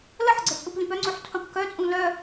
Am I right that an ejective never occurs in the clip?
no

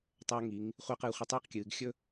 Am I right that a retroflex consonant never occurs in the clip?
yes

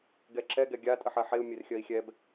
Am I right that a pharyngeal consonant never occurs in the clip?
no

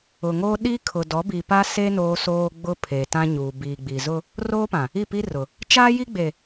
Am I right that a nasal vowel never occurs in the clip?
no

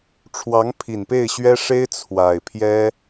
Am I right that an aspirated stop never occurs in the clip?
no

